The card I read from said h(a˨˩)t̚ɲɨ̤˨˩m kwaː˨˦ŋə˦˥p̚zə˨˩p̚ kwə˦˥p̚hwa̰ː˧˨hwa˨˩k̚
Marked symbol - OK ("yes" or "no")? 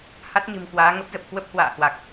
no